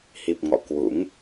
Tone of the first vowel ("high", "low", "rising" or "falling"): low